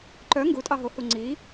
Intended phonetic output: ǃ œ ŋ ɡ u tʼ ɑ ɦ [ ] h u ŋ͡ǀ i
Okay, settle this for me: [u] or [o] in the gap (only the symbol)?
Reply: o